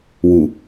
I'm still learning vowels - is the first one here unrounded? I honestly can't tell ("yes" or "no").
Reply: no